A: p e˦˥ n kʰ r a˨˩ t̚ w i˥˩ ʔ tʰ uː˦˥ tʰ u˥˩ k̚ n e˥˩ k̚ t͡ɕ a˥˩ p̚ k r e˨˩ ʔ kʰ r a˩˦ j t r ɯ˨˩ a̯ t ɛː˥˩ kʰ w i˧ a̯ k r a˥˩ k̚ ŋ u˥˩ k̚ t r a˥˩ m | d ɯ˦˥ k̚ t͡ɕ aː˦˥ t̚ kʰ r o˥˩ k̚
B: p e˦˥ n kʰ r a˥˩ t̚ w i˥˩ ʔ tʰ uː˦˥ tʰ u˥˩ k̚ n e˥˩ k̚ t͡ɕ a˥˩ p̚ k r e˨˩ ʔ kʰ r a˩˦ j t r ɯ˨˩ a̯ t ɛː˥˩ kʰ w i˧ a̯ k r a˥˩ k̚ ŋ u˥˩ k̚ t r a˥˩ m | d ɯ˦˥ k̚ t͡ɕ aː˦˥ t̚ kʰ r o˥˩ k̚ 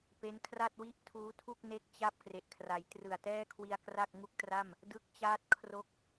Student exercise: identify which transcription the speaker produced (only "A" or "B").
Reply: B